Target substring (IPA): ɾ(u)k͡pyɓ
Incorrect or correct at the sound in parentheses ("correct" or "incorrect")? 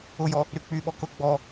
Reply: incorrect